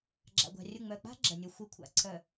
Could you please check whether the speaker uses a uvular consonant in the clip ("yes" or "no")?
no